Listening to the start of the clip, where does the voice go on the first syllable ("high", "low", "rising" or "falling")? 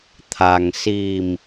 low